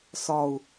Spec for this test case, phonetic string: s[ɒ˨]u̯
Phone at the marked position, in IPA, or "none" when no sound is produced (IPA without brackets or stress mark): ɒ˨